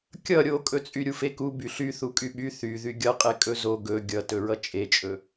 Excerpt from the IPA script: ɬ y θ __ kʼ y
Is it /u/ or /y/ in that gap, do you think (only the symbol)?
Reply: u